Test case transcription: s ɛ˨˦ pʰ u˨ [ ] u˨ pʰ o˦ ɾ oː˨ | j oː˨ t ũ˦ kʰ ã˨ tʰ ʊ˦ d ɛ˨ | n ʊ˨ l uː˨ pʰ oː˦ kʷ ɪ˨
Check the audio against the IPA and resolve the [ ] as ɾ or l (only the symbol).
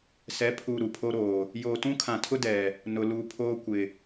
ɾ